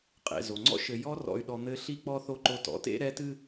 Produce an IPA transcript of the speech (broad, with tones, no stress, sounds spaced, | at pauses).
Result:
qʼ ḛ˩ z o˩ ŋ͡ǀ ɔ̰˦ ʃ ɘ˨ j ɔ˦ r ɔ̰˨ y̯ ɗ ɔ˨ n̪ ɘ˦ ɬ i˥ k͡p ɔ˥ θ o˦ ǃ o˦ t ɔ̰˨ t ḛ˥ ɾ ɛ˦ t ɨ˥